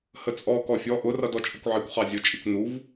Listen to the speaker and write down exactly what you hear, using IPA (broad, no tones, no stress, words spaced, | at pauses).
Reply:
hət͡sʼɔ kɔfʲɔ ʔʊ rʌdɔt͡ʃʼəkʷʕikʷ χɑzʲʊ t͡ʃʼikʷnuv